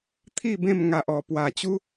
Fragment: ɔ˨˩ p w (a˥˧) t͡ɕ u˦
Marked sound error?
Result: yes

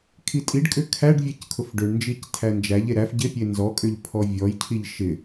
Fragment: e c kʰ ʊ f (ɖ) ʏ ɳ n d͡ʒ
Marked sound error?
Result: no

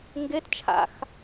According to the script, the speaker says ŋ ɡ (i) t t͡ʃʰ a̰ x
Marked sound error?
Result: yes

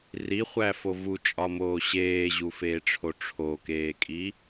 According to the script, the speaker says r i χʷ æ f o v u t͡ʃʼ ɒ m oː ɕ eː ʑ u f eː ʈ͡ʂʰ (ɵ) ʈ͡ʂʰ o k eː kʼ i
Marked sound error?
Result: yes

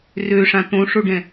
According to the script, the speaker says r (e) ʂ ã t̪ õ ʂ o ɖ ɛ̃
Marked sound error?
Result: yes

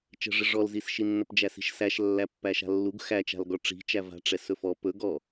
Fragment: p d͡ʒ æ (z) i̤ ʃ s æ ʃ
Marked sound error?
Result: yes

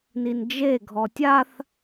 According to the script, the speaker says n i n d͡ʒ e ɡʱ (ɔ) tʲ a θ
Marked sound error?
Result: no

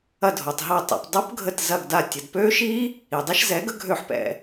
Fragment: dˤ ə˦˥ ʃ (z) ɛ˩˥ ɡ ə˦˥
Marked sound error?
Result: no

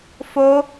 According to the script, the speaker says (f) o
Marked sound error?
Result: no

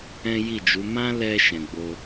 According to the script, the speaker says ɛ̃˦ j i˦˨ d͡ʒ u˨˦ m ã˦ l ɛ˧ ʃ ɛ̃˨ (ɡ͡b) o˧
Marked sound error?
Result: no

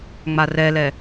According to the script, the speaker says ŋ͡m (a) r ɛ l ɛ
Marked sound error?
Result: no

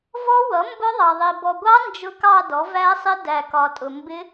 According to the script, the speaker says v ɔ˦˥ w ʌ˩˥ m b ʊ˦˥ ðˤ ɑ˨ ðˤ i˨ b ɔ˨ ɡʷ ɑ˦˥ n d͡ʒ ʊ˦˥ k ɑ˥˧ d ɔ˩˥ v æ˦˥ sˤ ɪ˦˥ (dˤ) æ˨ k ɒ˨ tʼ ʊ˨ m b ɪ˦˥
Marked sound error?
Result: yes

